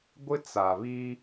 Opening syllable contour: high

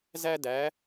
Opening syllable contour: high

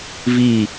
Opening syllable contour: falling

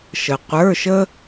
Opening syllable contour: low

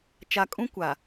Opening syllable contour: low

